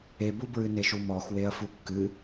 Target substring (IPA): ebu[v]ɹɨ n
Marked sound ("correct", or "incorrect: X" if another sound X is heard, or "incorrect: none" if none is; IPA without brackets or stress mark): incorrect: b